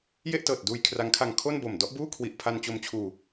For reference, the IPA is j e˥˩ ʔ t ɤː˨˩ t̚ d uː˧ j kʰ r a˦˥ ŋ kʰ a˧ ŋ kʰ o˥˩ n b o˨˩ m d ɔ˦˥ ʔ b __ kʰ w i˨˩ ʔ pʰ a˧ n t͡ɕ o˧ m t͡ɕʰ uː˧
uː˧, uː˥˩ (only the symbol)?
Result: uː˥˩